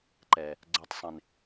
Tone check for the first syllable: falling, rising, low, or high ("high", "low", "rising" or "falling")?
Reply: low